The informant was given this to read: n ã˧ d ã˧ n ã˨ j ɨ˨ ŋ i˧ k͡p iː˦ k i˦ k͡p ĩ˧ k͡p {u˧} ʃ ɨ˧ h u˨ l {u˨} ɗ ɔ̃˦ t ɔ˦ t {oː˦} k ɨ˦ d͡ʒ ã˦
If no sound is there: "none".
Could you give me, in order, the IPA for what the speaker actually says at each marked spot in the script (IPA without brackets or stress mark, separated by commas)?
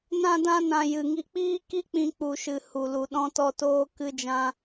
u˧, u˨, oː˦